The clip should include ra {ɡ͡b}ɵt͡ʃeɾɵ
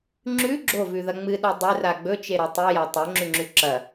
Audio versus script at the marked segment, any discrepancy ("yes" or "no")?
no